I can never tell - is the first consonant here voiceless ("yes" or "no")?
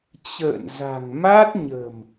yes